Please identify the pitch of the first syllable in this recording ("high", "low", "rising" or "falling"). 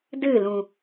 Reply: falling